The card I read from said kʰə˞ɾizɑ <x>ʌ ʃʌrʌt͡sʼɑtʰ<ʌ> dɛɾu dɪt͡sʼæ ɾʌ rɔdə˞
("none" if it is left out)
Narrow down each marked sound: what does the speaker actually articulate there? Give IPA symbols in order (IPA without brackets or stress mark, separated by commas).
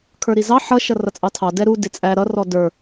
ħ, ɑ